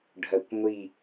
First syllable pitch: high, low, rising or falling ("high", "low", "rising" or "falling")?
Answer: low